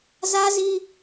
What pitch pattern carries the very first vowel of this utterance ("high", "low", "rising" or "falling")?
high